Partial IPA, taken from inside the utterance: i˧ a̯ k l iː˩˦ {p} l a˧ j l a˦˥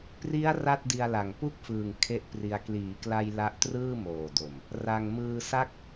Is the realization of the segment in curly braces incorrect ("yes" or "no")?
yes